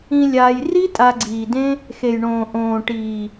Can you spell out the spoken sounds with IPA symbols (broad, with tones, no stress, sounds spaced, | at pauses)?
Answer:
ĩ˧ lʲ aː˧ j r i˦ tʼ a˧ ɡ͡ǀ iː˨ d ẽ˦ | x e˨ j ɳ õː˨ ʔ õː˨ ʈ iː˨